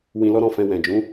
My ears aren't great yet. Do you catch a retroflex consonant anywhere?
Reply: no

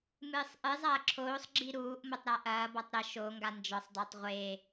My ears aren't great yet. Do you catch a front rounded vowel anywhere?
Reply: no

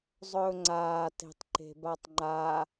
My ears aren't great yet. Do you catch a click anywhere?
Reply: yes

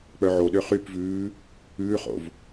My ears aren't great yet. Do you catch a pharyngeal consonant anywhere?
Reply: yes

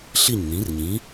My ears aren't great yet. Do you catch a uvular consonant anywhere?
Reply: no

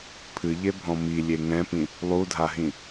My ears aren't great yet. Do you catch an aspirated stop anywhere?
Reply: yes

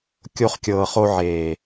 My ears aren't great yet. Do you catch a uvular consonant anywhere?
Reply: yes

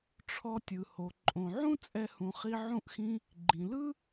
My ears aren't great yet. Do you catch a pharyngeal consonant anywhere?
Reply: yes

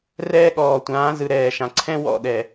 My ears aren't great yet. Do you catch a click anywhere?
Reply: yes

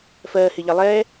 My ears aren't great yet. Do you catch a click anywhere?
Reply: no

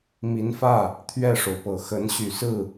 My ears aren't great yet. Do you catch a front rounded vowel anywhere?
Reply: yes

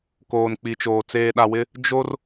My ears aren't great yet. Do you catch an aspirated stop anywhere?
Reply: no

